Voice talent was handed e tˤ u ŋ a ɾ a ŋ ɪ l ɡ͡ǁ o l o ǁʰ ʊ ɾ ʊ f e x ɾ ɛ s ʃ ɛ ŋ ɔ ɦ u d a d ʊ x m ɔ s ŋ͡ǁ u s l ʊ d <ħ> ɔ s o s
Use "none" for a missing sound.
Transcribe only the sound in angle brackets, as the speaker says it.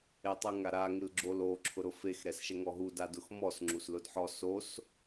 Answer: ħ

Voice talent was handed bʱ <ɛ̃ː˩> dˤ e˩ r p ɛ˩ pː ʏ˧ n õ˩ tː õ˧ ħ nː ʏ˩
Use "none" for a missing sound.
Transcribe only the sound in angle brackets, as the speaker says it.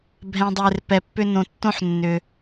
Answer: ɛ̃˩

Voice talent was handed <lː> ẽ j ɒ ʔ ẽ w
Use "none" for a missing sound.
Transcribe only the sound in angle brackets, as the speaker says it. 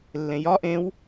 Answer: lː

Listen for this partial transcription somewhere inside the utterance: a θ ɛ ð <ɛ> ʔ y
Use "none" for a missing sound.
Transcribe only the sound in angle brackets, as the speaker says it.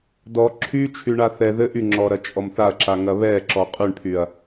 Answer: ɘ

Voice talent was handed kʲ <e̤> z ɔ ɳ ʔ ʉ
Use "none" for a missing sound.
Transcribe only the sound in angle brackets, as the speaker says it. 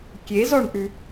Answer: e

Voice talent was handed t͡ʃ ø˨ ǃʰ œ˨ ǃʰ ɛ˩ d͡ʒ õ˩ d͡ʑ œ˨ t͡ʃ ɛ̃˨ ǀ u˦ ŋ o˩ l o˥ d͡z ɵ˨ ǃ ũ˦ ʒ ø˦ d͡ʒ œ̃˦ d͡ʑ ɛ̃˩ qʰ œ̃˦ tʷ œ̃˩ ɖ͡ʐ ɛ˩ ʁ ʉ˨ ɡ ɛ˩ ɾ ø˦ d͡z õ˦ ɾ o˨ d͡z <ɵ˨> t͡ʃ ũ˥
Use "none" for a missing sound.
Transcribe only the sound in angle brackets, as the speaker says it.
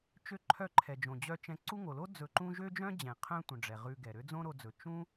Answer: ɵ˩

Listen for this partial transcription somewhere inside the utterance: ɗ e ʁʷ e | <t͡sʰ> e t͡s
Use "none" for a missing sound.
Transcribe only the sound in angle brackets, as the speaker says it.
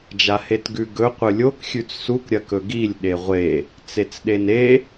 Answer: t͡s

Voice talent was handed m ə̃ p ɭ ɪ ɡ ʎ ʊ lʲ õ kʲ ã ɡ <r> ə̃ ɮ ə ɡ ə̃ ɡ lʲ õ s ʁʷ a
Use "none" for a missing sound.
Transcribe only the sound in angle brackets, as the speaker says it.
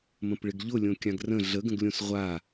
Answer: r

